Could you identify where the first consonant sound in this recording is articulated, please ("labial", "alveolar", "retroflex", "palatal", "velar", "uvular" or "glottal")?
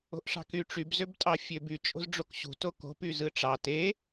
glottal